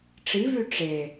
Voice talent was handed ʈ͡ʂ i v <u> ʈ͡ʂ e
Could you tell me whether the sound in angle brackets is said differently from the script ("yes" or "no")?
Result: yes